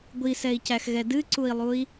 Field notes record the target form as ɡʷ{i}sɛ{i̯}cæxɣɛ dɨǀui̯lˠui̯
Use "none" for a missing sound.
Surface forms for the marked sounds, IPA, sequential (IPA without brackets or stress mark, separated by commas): i, i̯